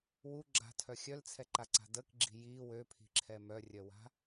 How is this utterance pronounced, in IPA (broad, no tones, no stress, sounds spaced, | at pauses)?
w u ɡ͡ǁ a̤ tʰ œ xʲ œ l t͡sʰ ɛ ǃ a ǀ a̤ d ə k ɡ͡ǁ i̤ j i w ø pʰ i̤ ǁʰ ɛ m œ rʲ œ w a̤